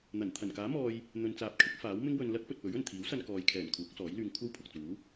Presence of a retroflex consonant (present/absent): absent